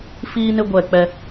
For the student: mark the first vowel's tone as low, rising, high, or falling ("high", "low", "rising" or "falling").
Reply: high